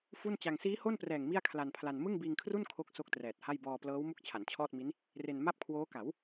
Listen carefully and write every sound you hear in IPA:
f u˥˩ n t͡ɕ a˧ ŋ s iː˦˥ h o˥˩ n p r ɛː˨˩ ŋ m i˥˩ a̯ kʰ l a˧ n pʰ l a˧ n m ɯ˥˩ ŋ b iː˧ ŋ kʰ r u˥˩ n kʰ o˥˩ k̚ s o˥˩ k̚ t r ɛː˨˩ t̚ h a˥˩ j b ɔː˧ p l ɤː˦˥ w m u˥˩ k̚ t͡ɕʰ a˩˦ n t͡ɕʰ ɔː˥˩ t̚ m i˦˥ n | r e˧ n m a˥˩ p̚ kʰ w oː˦˥ k a˩˦ w

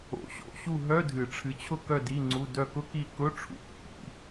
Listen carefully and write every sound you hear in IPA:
o̰˨˩˦ ɕ o̰˧˥˧ ɕ u˥˨ ɦ œ˧˥˧ dʱ ɨ˨˩˦ ʈ͡ʂʰ ɨ˨˦ t͡ɕʰ ʊ˥˨ k œ˥˨ d i˧˥˧ ŋ͡ǀ u˧˥˧ d œ˥˨ k ʊ˥ k i˥˨ k ʊ˧˥˧ ʈ͡ʂʰ ṵ˨˦ pː ḭ˨˦

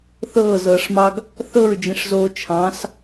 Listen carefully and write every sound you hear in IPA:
θ ɤː z ɤː ʂ m ɑ ɡ | θ ɤ ɹ d͡ʒ ĩ ʂ z oː t͡ʃʰ ɑ̃ s

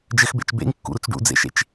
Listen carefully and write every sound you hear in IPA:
d͡ʒ ɘ x b ḛ t͡ʃ b ḛ ŋ kː ṵ ɾ u t͡s ɖ ṵ d͡z ḛ ʃ ḛ t͡ʃ

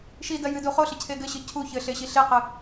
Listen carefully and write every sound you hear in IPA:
ʃ i d ɐ j ɨ d u χ o ɬ ɘ cʰ e ɡ ɘ ɕ ɨ cʰ u ç ɘ ɬ e ɕ i ɬ e q ɨ

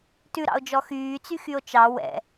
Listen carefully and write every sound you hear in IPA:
t ʉ ɾ ɑ̰ o̯ d͡ʒ ɔ x yː t͡s y x y o̯ t͡ʃ ɑ w ɛ̰

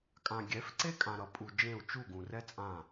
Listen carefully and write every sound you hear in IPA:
kʼ ã˨ ɡʲ ɛ˨˦ f ǀ e˦ kʼ ã˨ ɾ ʌ˨ pʼ u˨ d͡ʒ ẽ˦˨ u̯ t͡ʃ u˦˨ ɡ ũ˨ r ɛ˦ t͡sʼ ã˦˨

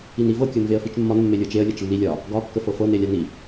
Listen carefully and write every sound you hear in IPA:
i n i v ɤ kʲ ɤ n v e ə̯ f i t͡ʃ mː ɒ n mː e lʲ ɤ t͡ʃ e ə̯ lʲ ɤ t͡ʃ lː i lʲ ɒ | ɡ ɒ kː ə f ɤ f ɤ n e lʲ a n i

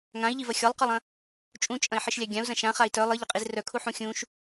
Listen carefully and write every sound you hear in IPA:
ŋ ã i̯ ʎ i v ɐ xʲ ɒ lˠ q ɒ lˠ ɐ̃ | t͡ʃʼ ũ t͡ʃʼ ɐ̃ i̯ ħ i ʃ lʲ a ɡʲ ã u̯ z ɐ̃ ʃ ã χ a i̯ t œ lˠ ɨ ʎ ɐ qʼ i z r œ kʰ u ħ ũ xʲ ũ ʃ

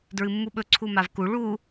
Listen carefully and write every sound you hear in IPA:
d ɹ ɨ mː u ɓ ɵ ǀʰ u m a v k u ɭ u

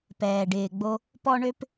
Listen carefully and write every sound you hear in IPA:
p ɛː˨ ɖ ɪː˨ ɡ͡b o˧ | p ɔ˦ ɳ ø˦ p

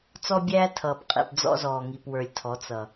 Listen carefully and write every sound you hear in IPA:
t͡s ɔ˦ bʲ æː˦ tʰ ʌː˨ p qʼ ḭ˨ p d͡z ɔ̰˦ z ɔː˨ ŋ i˨ p w ə˞˨ lʲ tʰ ɔ˨˦ t͡s ʌ˨

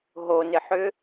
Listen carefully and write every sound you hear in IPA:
ɦ o n ɪ ħ ʏ

